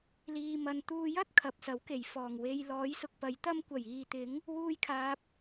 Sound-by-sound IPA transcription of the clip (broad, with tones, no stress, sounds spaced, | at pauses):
l iː˧ m ɐ˧ n t̪ uː˧ j ɐ˥ t̚ kʰ ɐ˨ p̚ s ɐ˨˥ w k e˨˩ j f ɔː˨˩ ŋ w e˧ j l ɔː˨˥ j s ʊ˨ k̚ p ɐ˨˥ j t̪ ɐ˥ m kʷ ɐ˨˩ j iː˨ t̪ ɪ˨˥ ŋ | w uː˥ j kʰ aː˧ p̚